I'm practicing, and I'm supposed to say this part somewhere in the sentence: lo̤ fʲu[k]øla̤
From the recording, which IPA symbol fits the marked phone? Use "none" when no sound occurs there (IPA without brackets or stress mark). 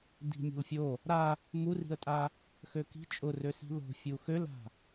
x